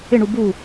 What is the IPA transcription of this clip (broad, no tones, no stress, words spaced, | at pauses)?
ɪ ɳubu